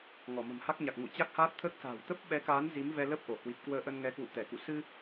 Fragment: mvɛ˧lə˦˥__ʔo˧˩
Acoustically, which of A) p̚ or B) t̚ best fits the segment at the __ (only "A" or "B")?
A